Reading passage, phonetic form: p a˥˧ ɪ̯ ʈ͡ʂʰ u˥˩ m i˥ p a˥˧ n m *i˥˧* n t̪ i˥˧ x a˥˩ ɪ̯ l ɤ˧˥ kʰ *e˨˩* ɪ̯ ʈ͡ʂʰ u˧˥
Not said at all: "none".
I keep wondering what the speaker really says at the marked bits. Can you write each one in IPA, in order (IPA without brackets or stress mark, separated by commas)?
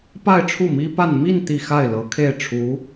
i˥˧, e˥˩